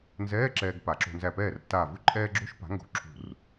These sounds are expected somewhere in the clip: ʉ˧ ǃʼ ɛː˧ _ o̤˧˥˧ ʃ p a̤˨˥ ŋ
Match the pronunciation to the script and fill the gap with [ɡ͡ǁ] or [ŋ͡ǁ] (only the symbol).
ɡ͡ǁ